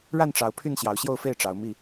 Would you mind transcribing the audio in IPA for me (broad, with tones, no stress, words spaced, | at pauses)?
ɻa˥˨nʈ͡ʂɑ˨˦ʊ̯ pʰy˥˨nɕjɑ˨˦ʊ̯ɕjo˥˨ʊ̯fe˥˨ɪ̯ ʈ͡ʂɑ˨˦ʊ̯mi˥˨